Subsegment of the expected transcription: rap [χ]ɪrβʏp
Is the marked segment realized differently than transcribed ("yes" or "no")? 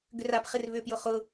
no